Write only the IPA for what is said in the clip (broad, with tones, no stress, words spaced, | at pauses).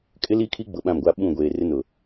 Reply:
kʼɪ˦li˦kʰi˦ ɡ͡bʊ˨ɓã˦˨mɡʷa˦ ɓũ˦˨ ɡʷeː˨ rɪ˦nʊ˨